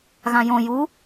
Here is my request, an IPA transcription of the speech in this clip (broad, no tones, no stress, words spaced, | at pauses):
ɣãjõ ju